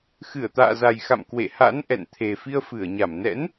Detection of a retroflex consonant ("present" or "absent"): absent